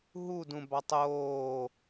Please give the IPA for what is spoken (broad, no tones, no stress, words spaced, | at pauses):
ɦudũbɑtˤ oː